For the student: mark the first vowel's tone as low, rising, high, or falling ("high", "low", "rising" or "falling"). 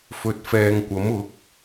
low